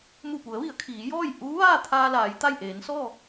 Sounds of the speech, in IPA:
mu˧˩pu˩˧ə̯ʋi˩˧ə̯ kʰiː˩˧jɔː˥˨j ʔuː˧˥ʋaː˥˨t̪ʰaː˧laː˩˧j t̪a˥˨j ʔeː˩˧nsɔː˥˨

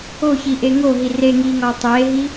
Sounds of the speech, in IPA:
oçiʔe ŋoɦi re ŋiŋɒ tˤeɦi

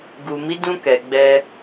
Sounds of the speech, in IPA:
ɡu˨mi˨˦dũ˧kɛ˨ ɡ͡bɛ˧

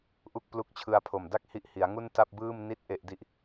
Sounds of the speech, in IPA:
ʔu˥˩k̚plu˦˥k̚t͡ɕʰɯ˧a̯ pʰo˨˩mda˥˩k̚ hi˦˥ʔhi˩˦a̯ ŋu˥˩nta˥˩p̚ bɯː˥˩mni˥˩t̚ ʔe˨˩ʔdi˨˩ʔ

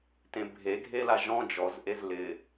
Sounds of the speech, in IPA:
tẽbʱeɡʱela ʒɔ̃ d͡ʒɔzʔez lɪ

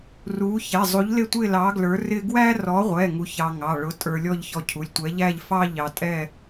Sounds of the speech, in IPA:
ru˨˥ çɛ˩˧˩zˤu˨˥ʎlɪ˥˧tʷɪ˥˧ lɑ˨˥ɡlə˞˨˥ rɪ˥ ɡwæ˥rɔ˨˥ʁʷɛ˩˧˩ ŋu˧çɑ˧ŋɑ˩˧˩ ɭʊ˨˥tʼə˞˧ lʲɔ˥˧ʎçɔ˧cʰu˩˧˩lʲtʷɛ˨˥ ʎæ˥˧ʎfɑ˥ʎɑ˧ tʼɛ˥˧

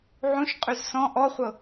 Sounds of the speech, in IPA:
ʕũʃ qʼyzsɔ̃ ʔɔχʷɤ

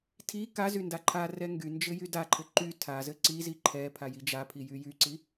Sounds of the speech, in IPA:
tʰi kazy ndaǃʰarɛ ŋɡynd͡ʒɘ jydaǃʰɘ ǃy tʰazɘ ǀizi ǃʰɛpʰa jid͡ʒapʰi jyjyǀi

